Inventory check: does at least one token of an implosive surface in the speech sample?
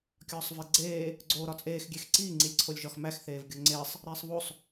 no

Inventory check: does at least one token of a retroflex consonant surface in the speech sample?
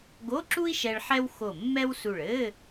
yes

